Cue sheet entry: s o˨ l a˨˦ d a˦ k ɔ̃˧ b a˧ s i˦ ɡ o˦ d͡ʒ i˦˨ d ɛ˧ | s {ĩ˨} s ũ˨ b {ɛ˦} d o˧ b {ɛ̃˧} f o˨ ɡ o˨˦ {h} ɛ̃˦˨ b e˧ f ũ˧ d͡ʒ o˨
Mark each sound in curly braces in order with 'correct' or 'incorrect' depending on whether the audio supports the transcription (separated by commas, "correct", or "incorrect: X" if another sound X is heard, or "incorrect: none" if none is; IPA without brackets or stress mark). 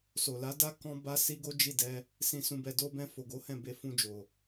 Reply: correct, incorrect: ɛ˨, correct, correct